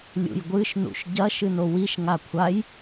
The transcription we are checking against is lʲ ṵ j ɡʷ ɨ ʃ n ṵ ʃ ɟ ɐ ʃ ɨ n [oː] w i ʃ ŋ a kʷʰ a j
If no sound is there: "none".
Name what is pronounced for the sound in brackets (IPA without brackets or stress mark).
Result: o